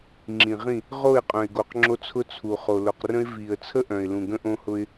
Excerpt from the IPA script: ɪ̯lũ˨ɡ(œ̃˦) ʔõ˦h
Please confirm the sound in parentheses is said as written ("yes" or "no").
no